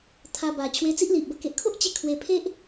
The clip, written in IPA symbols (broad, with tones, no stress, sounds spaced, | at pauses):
t̪ʰ a˧ b a˨˩ t͡ɕʰ w e˧ t͡s i˦ ʔ l i˨ ʔ b ə˧ k e˨ ʔ kʰ o˦ ʔ t͡ɕ e˦ kʰ w e˧ pʰ e˦ ʔ